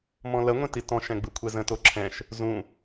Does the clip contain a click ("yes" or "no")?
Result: yes